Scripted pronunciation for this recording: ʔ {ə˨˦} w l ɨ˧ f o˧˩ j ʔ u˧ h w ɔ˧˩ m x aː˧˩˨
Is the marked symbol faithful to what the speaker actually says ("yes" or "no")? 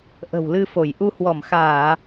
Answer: no